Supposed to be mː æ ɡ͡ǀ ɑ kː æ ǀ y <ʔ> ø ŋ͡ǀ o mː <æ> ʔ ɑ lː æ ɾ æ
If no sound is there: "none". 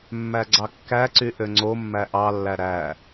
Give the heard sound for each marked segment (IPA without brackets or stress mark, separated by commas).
ʔ, æ